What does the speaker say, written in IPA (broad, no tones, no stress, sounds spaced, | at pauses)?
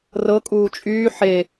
r ɤ kʼ uː t͡ʃʼ yː ħ e